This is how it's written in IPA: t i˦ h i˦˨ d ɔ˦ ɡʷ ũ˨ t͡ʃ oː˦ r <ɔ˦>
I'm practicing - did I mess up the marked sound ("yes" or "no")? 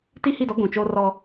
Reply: no